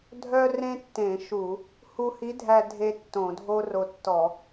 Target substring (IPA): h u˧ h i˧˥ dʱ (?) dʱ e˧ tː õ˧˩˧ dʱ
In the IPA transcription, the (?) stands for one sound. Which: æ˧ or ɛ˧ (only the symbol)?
æ˧